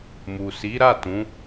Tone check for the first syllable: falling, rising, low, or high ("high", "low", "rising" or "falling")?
low